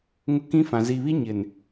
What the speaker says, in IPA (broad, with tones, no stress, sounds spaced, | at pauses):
ŋ ʊ˦ k ĩ˦ f ã˨ z i˨ β i˦ ɲ ɪ˨ n